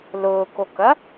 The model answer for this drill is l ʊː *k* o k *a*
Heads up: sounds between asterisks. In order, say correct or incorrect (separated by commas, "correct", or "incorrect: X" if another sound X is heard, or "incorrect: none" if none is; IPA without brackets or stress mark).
correct, incorrect: ɐ